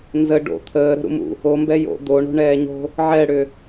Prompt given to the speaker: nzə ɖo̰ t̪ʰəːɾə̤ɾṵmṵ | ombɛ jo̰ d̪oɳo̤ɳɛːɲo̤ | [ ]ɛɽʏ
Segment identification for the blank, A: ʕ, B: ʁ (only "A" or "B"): A